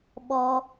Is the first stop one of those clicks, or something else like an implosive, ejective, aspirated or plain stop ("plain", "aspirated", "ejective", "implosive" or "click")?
implosive